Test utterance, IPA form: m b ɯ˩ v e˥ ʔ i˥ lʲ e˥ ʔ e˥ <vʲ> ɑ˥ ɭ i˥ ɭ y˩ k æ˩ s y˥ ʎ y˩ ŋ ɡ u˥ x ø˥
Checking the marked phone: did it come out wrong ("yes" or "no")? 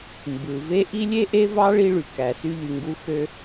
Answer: yes